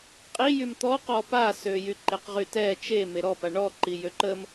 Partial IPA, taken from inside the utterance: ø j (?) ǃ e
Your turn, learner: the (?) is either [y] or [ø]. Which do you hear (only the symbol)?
y